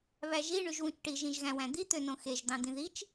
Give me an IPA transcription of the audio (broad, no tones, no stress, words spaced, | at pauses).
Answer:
βæʒi ɳyʒwũt͡ʃʈi ʒĩʒɣæ̃wæ̃d̪i t̪ønõxeʒ d̪ɑ̃d̪ĩðit͡ʃ